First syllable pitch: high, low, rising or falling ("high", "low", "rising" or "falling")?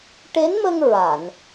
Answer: rising